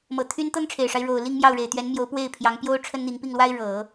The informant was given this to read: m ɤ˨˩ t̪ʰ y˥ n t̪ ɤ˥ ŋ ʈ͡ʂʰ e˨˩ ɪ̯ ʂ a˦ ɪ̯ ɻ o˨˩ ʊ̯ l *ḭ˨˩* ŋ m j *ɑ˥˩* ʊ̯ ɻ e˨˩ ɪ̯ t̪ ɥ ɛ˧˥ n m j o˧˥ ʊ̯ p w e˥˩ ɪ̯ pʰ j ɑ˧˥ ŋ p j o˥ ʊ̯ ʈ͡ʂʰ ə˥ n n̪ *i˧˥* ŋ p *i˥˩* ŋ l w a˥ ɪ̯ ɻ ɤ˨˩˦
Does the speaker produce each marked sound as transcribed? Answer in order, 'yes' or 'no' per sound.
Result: no, yes, yes, yes

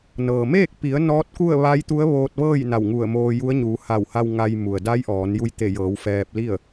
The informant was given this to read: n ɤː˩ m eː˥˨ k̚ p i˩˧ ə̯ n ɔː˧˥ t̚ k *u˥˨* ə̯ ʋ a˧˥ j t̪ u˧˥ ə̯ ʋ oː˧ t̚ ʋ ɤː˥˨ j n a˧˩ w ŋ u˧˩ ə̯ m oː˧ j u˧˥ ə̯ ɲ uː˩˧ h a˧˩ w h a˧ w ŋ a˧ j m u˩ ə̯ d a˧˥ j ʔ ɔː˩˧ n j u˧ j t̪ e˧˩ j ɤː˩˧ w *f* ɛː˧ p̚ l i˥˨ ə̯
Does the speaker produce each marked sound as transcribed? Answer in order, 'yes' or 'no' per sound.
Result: yes, yes

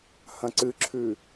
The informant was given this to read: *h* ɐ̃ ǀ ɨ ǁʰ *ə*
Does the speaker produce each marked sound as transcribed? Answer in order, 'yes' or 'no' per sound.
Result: yes, no

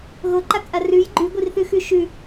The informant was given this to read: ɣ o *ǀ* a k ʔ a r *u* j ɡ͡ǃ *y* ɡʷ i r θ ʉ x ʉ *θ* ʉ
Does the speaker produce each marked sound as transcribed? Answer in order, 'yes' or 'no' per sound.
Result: no, no, yes, no

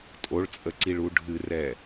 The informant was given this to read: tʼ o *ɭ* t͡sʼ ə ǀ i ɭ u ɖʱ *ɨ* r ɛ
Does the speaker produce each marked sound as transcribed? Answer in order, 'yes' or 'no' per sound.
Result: yes, yes

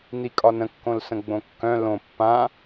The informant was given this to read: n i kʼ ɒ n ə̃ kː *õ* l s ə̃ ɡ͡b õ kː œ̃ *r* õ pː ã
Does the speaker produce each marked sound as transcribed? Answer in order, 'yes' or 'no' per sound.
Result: yes, no

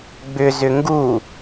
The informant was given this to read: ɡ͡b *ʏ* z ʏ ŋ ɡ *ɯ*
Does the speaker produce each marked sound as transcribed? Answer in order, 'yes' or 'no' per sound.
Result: yes, no

